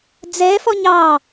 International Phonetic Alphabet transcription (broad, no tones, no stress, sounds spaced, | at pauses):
d͡z ɛ f ɔ ɲ ɑ